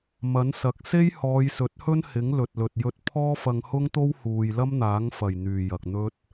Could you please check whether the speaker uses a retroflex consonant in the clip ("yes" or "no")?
no